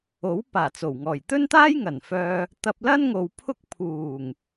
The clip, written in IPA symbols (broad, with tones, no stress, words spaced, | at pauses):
o˨˥w paː˨˩t͡so˨˩wŋɔː˨˩j t̪ɵ˥nt̪aː˥j ŋɐ˨˩nfœː˧ | t̪ɐ˧p̚ lɐ˥nŋo˨wpʰʊ˥k̚ pʰuː˨˩ŋ